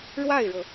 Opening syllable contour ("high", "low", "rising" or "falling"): falling